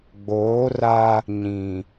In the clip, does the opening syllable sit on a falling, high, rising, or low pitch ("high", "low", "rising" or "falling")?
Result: rising